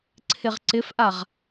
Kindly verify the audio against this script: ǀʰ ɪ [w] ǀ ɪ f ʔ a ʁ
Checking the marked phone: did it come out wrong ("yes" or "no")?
yes